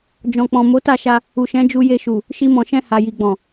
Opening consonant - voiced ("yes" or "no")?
yes